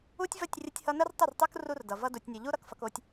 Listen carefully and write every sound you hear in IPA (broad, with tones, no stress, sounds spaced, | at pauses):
u˦ tʲ v ə˦˨ tʲ rʲ ə˦ tʲ h ʌ˦ n ə˦ r tˤ ə˦˨ r tˤ u˦ k r u˦ r d ʌ˨ v ʌ˦ d u˨ tʲ nʲ o˨ ʎ u˦ ɾ ʌ˦ k f ʌ˦ k o˦ tʲ